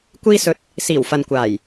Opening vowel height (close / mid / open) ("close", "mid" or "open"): close